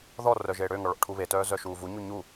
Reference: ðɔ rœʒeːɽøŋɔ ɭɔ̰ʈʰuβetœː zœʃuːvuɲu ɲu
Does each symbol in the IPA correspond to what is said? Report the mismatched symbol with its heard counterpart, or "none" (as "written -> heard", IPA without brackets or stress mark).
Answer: none